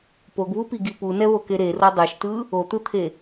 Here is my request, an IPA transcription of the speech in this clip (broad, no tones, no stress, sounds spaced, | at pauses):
p o ɡ β u p i ɡ i p u n ɛ β o k e ɾ e r o dˤ e ʃ t ɯ | o t̪ ɯ t̪ʰ e